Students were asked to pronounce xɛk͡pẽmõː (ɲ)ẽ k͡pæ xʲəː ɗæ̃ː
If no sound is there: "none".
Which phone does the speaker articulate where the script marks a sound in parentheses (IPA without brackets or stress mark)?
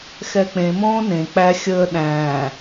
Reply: n